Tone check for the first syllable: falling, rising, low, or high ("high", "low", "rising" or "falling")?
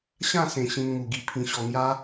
falling